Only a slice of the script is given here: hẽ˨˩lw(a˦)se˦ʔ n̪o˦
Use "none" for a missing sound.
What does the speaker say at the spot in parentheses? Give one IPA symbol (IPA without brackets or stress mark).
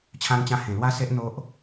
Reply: a˦